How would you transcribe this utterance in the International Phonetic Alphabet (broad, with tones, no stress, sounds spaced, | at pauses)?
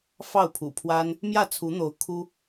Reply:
f ɑ˥˩ ʊ̯ pʰ ṵ˨˩ pʰ w a˥ n | m j ä˥˩ t͡sʰ u˧˥ n̪ o˧˥ ʊ̯ kʰ u˥